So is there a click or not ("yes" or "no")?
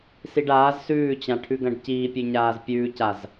no